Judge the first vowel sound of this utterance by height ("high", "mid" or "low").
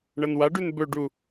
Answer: low